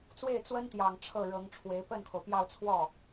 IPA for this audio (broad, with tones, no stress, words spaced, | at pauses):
t͡swe˥˩ɪ̯t͡swə˥nt̪jɑ˨˩ŋ ʈ͡ʂʰɤ˥˩ɻɤ˧˥ŋʈ͡ʂʰwe˧˥ɪ̯ pə˥˩nkʰo˩ʊ̯pjɑ˥˧ʊ̯ t͡sʰwɔ˥˩